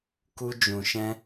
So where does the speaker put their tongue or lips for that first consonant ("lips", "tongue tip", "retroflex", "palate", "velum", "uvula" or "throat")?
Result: velum